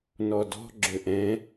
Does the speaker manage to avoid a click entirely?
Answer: no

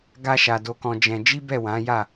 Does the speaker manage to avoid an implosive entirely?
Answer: yes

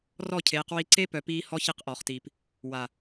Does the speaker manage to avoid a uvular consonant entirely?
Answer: no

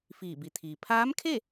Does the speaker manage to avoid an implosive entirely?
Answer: yes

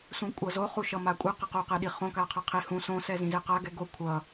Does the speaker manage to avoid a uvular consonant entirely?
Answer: no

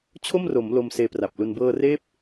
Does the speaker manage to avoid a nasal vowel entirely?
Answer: yes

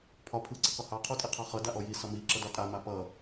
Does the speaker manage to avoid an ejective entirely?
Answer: no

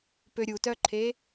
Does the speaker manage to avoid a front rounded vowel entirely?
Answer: no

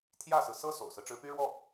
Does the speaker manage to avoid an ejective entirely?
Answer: yes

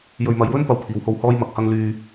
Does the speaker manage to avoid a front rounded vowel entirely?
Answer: no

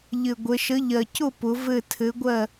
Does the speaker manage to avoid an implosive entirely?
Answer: yes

